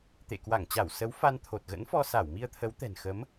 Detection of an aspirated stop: present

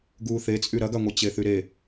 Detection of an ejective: present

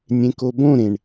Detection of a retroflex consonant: present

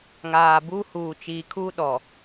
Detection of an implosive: present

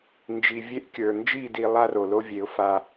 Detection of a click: absent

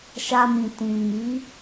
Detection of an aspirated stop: absent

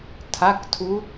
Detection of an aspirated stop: present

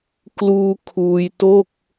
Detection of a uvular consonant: absent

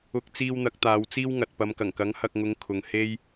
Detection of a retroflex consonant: absent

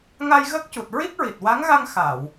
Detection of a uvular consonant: absent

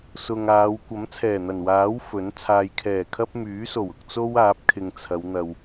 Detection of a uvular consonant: absent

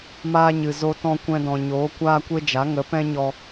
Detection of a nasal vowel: present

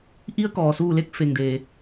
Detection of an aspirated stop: absent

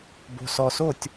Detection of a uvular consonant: absent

